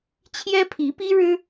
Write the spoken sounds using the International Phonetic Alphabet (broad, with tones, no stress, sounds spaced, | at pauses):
t͡ɕʰ j ɛ˥ pʰ i˧˥ p i˥ ɻ ɻ̩˥